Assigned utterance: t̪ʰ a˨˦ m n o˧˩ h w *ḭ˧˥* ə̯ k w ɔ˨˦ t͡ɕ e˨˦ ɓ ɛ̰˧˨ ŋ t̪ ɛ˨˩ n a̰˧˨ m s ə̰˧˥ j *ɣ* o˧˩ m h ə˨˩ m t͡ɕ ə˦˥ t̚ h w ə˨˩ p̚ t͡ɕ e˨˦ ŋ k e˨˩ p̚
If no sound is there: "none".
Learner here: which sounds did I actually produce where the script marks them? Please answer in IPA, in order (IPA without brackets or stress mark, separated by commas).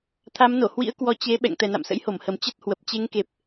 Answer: ḭ˧˥, h